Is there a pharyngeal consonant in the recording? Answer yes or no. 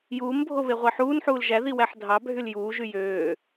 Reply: yes